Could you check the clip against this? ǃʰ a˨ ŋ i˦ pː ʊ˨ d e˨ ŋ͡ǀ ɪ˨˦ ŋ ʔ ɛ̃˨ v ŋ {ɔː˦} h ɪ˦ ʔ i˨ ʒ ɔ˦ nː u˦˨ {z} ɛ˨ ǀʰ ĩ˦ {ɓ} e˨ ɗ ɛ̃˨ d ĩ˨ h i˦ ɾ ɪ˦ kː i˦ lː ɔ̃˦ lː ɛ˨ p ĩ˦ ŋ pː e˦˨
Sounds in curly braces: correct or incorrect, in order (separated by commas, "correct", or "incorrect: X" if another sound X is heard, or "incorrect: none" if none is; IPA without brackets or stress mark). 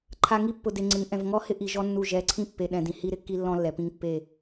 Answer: incorrect: ɔ˦, incorrect: ʒ, incorrect: pː